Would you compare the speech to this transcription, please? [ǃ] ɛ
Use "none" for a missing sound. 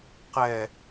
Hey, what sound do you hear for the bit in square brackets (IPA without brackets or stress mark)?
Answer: q